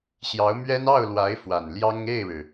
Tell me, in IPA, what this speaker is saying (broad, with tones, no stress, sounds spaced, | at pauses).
ɕ j ɑ˧˥ ʊ̯ m ɥ ɛ˥ n ɑ˥˩ ʊ̯ l w a˧˥ ɪ̯ f w a˨˩ n l j ɑ˥ ŋ e˥˩ ɪ̯ ɻ ɻ̩˩